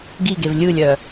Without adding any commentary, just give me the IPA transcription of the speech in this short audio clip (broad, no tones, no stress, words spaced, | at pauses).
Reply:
ɡiɡev lʲɯlʲœ